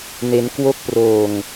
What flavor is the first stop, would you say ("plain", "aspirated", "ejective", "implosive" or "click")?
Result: plain